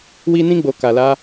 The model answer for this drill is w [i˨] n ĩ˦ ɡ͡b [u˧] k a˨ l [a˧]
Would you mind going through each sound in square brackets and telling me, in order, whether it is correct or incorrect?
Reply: incorrect: i˦, incorrect: o˧, correct

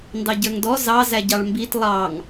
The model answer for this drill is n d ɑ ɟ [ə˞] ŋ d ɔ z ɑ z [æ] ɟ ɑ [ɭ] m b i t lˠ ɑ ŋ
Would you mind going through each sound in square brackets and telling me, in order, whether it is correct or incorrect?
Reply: correct, correct, correct

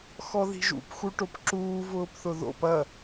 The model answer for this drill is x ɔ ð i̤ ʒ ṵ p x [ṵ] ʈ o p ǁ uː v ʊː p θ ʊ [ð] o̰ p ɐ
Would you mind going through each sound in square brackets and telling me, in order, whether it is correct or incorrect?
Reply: incorrect: u, correct

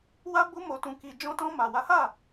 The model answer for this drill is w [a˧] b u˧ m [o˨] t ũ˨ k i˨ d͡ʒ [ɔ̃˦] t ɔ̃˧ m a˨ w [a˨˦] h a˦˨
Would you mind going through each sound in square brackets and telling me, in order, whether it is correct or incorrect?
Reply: correct, correct, incorrect: ɔ̃˧, correct

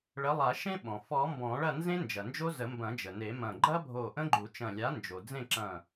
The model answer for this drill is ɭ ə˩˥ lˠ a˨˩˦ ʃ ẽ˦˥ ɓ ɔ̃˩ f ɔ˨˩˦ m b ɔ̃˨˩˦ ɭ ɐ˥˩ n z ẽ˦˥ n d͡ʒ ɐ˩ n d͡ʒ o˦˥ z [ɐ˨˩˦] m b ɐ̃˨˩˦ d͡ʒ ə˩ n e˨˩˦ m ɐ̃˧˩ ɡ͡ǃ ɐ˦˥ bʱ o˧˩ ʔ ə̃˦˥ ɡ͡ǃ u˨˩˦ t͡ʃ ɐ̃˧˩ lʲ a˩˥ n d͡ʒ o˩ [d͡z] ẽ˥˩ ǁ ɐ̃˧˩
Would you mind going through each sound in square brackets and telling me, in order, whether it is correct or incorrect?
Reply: incorrect: ə˨˩˦, correct

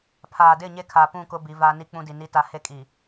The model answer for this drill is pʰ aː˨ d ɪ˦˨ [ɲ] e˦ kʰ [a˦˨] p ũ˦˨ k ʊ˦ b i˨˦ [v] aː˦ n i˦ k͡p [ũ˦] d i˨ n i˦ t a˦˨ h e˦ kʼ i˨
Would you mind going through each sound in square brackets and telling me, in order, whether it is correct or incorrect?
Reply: correct, incorrect: a˨, correct, correct

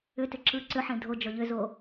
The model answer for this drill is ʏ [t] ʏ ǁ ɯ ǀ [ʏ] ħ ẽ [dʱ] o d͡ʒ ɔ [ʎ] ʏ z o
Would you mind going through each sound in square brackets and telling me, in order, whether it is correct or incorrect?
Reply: correct, correct, correct, correct

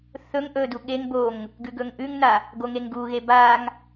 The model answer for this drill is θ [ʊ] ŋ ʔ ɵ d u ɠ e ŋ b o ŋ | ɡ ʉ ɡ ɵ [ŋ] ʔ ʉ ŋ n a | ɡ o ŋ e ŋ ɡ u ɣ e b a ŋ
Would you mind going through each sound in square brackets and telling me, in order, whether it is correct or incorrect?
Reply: incorrect: ɵ, correct

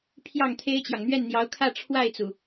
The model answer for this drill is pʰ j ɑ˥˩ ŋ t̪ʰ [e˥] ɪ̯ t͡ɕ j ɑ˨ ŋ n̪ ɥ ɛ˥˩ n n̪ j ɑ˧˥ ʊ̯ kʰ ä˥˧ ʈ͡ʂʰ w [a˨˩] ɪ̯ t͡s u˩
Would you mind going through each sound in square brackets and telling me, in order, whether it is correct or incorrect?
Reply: correct, incorrect: a˥˩

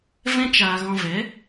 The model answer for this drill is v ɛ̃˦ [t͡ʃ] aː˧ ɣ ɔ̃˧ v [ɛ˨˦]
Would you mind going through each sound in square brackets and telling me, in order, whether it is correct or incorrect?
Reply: correct, correct

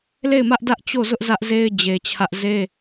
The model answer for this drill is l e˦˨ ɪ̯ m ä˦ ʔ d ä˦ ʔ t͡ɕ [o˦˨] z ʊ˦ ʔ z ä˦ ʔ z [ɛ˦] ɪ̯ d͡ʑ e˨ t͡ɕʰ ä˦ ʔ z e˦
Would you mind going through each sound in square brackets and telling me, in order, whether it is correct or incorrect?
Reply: correct, incorrect: e˦

